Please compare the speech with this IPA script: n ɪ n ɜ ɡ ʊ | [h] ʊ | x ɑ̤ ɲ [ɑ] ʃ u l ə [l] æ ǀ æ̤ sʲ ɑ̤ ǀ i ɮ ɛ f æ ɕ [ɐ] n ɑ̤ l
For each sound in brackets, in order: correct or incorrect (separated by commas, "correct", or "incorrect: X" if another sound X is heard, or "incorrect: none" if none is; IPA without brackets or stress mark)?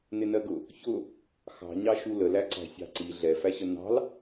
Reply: incorrect: ç, correct, correct, incorrect: ə